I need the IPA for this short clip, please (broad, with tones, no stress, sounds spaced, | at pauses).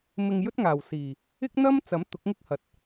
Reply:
m ɪ˧ ŋ j ɵ˥ t̚ ŋ aː˨˩ w s iː˨˩ | ɪ˥ k̚ n̪ ɐ˥ m t͡s ɐ˨˥ m t̪ ʊ˨˥ k̚ ŋ ɪ˥ k̚ h ɐ˨ t̚